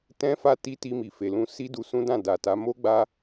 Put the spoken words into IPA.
t ɛ̃˦ f a˧ t i˧ t i˧ m i˨ f e˨ l ũ˧ s i˦ d u˧ s ũ˦ d ã˦˨ d a˨ t a˨˦ m o˦ ɡ͡b a˦

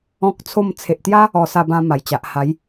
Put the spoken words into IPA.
ɔ̃˦ k̚ t͡sʰ o˥˧ m t͡sʰ e˨ ʔ t̪ j a˦ | ɔ˧ s a˧ b ã˧ m a˨˩ j t͡ɕ a˨ ʔ h a˨˦ j

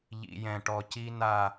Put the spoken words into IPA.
ʎ ḭ˨ j ɛ̃˨ ʈ ɔ˨ c i˦ n a˦

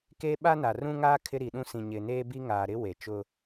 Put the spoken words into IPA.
k e˦ ɓ a˦ n a˨ r ũ˦ ŋ aː˦ kʰ ɪ˦ ɾ i˨ ɗ ũ˦ s ĩ˨ ɲ ɪ˨ n eː˦ b i˦ ŋ aː˨ ɾ ɪ˦ w e˨ t͡ʃ ʊ˦

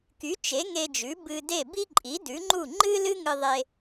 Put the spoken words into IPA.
k y˩˥ t͡ʃ e˩˥ ŋ e˧ d͡ʒ ʉ˩˥ b ɨ˧ d e˥˩ b i˥ ǃʼ i˩˥ d ʉ˩˥ ŋ͡ǃ u˥˩ ŋ͡ǃ ɨ˥ l ɨ˥ ŋ ɨ˧ ðˤ e˧

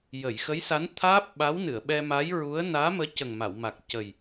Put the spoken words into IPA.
j ə˨˩˨ j x ə˧˥ j s a˧˥ n t̪ʰ aː˦˥ p̚ ɓ a˧˥ w n ɨ˨˩˨ ə̯ ɓ ɛ˧ m a˧˥ j ɹ u˧˥ ə̯ n aː˧˥ m əː˧˥ c ə˨˩ ŋ m a˨˩˨ w m a˨˩ k̚ c ə˨˩ j

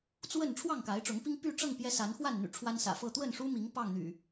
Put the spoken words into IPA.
t͡s w ə˥˨ n ʈ͡ʂʰ w ɑ˥˨ ŋ k a˨˦ ɪ̯ ʈ͡ʂ ʊ˨˦ ŋ p i˦ ŋ p y˥˨ ʈ͡ʂ ɤ˥˨ ŋ p j ɛ˦ s a˨˦ n x w a˥˨ n n̪ y̰˨˩ ʈ͡ʂʰ w a˦ n s ä̰˨˩ f ɤ˥˨ t̪ w ə˥˨ n ʂ u˦ m i˨˦ ŋ p ɑ˥˨ ŋ n̪ y̰˨˩

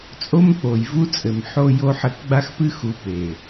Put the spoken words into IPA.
t͡sʼ o˦ m k͡p o˨ j v u˦ t͡sʼ ɘ˨ m ħ o˦ j o˦ ħ ɘ˦˨ k ɡ͡b a˦ x p ɨ˦ x u˨˦ p e˨

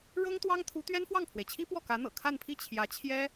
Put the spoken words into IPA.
ɻ ɤ˥ ŋ t̪ w ɑ˥ ŋ t̪ʰ u˧˥ t̪ ɥ ɛ˥ n f w ɑ˥˩ ŋ pʰ w e˩ ɪ̯ t͡ɕʰ i˥ p w ɔ˥˩ k ä˧˥ n̪ ɤ̰˨˩ kʰ a˥˧ n pʰ i˥˩ t͡ɕʰ j ä˧˥ t͡ɕʰ j ɛ˥

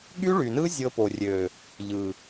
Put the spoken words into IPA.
ɠ y˦ ɭ y˨ n ɯ˦ zʲ ɤ˧ p o˨ rʲ ø˨ | ʎ ɯ˨

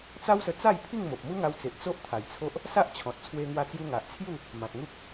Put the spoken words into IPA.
t͡s a˦ w s ə˧ t͡s a˥˧ j pʰ i˥˧ ŋ m o˨ p̚ m u˦ ŋ a˧ w t͡s e˨ ʔ t͡s o˦ ʔ t̪ʰ a˨˩ j t͡sʰ o˦ ʔ | s a˦ ʔ t͡ɕʰ ɔ̃˨ t̚ t͡sʰ w e˧ ŋ w a˧ t͡s j u˧ ŋ a˨ ʔ t͡sʰ j u˥˧ | m ã˨ t̚ ŋ u˦ k̚

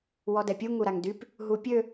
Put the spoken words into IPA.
w ɔ d ɛ pʲ u ŋ u ɾ a ŋ d y p | ɦ u pʲ ø

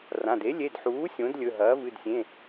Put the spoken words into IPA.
r ã˩˧˩ d e˩˥ lʲ e˩˧˩ d ħ uː˩˥ sʲ õ˩˥ d lʲ ɵ˩˧˩ ɦ ɐː˩˥ v ɨ˩˧˩ d sʲ ẽ˩˧˩

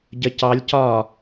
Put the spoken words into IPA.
ɟ ə c ɑ lʲ c ɒ

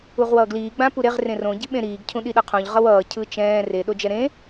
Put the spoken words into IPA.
u ʁ w ʌː ɡ l iː ɡ͡b ã p u ɾ e ʁ r ẽ r õ ɟ i ɓ ẽ ɾ iː ɡ cʰ ũ ɗ i ɗ ʌ qʰ õ ʎ ʁ ʌ w ʌː cʰ ɯ t͡ʃ ɛ̃ː r e ɗ o d͡ʒ ɛ ɾ ẽ

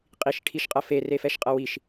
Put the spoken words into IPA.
qʼ i ʃ ʈʰ i ʃ qʼ ɐ f e r e f ɛ ʃ qʼ ɐ w i ʃ

